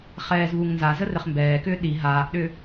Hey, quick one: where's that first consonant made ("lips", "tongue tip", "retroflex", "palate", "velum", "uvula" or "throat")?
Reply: uvula